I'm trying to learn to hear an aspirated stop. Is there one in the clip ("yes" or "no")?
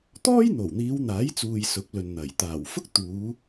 no